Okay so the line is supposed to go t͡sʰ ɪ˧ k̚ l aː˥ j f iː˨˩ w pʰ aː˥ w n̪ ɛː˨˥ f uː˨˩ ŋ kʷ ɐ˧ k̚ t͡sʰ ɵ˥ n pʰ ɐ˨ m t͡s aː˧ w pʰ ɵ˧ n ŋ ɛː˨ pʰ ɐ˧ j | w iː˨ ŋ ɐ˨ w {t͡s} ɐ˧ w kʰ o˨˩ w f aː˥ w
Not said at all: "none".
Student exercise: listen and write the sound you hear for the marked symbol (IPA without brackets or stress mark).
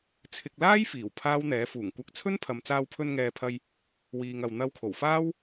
n̪